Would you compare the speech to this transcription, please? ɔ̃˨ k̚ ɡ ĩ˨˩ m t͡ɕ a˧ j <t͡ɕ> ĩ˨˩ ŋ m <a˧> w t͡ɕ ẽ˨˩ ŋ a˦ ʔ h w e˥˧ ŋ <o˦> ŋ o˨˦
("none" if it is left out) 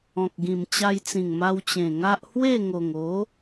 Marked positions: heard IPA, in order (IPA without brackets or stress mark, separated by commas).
t͡s, a˧, o˨˩